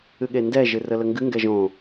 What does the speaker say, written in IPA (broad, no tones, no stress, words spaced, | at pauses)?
ɨɠendɛ ʒɨrələŋɡɨ ŋɡɛʒõ